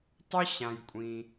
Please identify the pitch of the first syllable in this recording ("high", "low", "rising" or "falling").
high